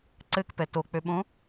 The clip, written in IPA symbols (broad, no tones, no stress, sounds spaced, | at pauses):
ǀ ɘ k p ɛ t o k͡p ø ɓ õ